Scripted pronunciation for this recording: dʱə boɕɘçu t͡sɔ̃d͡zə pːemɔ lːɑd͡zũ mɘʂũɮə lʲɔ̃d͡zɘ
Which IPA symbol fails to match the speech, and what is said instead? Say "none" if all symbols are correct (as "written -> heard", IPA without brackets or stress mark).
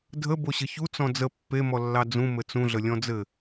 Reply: ʂ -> t͡s